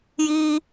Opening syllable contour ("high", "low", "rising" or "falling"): high